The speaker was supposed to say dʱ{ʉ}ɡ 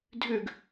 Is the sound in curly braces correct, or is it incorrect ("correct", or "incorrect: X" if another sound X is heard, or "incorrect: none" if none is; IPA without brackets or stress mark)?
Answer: correct